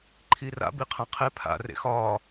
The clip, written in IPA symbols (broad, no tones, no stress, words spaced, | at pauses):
ǃʰira̰ biqʰãqʰe pʰa̰ rḛxɒː